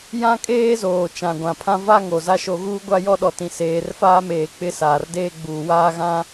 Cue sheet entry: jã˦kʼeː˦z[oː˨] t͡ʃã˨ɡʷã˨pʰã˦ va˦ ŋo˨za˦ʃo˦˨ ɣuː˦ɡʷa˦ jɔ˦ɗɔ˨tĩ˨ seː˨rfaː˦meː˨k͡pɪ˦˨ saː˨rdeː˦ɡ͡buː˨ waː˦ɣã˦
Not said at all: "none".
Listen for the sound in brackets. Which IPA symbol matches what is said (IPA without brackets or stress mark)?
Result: oː˨